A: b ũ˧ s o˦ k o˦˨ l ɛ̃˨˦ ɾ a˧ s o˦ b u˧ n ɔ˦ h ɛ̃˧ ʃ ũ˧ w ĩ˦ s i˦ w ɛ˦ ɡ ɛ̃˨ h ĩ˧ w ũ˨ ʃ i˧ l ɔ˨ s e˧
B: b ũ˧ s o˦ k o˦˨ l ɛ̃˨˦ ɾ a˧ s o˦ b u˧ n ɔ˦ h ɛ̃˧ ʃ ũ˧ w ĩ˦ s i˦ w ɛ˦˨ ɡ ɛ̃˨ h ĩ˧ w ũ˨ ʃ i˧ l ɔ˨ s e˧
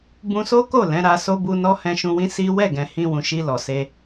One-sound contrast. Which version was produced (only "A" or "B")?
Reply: B